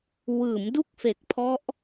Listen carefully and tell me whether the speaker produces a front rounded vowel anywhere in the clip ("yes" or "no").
no